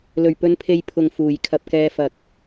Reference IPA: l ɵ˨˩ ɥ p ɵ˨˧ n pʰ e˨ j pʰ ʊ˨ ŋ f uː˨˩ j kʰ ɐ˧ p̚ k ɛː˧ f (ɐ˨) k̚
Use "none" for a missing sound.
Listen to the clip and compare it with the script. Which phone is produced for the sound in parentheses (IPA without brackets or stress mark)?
ɐ˨